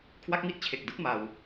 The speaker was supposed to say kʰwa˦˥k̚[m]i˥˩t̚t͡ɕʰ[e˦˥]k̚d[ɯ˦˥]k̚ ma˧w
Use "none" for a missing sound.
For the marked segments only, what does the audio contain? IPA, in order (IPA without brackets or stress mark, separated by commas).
m, e˨˩, ɯ˦˥